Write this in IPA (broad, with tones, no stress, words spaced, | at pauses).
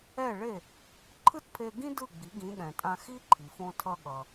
ɛ˥˩ɭe˥˩ | ǃʰɯ˥tpʰe˧ɡĩ˥ dɯ˥˩ɡ͡bi˩˥ ɡĩ˩˥ɠɛ̃˩tʼã˧ xi˥ǃʰi˩fõ˧ tʰʌ˧ɠʌ˩